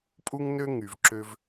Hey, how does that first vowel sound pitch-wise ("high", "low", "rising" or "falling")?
high